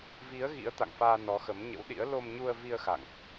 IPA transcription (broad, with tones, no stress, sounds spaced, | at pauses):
v i˨˦ ə̯ ɣ ḭ˧˥ ə̯ t̪ a̰˧˨ ŋ f aː˧ n ɔ˨˦ x ə˨˦ m ɲ ə̰˧˥ w ɗ ḭ˧˥ ə̯ l o˧ m ɲ u˧ ə̯ v i˧ ə̯ x a̰˧˨ ŋ ʔ